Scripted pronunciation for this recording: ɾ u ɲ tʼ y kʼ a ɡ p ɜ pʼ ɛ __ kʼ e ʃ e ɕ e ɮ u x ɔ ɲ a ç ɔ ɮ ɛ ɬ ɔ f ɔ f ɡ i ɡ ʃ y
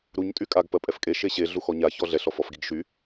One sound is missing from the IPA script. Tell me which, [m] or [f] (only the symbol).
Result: f